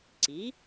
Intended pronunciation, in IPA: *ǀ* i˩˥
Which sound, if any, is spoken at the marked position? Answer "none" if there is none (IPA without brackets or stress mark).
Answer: ǀ